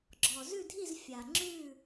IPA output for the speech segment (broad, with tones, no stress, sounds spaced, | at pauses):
ɡ͡ǁ ɔ˨˩ z ʉ˥˨ dʱ i˥˨ z fʲ a˨˩ ŋ͡ǁ ʉ˥˨